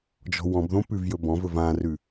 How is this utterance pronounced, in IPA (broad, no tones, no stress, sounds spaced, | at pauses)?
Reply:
d͡ʒ ɔ̤ w ɔ̃ b ð õ p ʉ v j ɵ b ɔ̃ v ɵ v ã r ʉ